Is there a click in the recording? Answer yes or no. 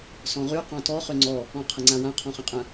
yes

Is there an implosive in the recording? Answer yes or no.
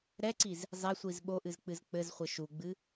yes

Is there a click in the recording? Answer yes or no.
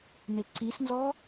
yes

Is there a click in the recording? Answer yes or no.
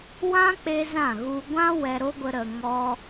no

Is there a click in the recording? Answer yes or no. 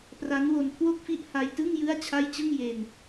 no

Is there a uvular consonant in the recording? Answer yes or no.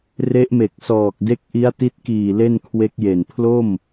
no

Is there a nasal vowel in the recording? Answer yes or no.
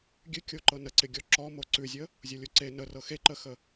no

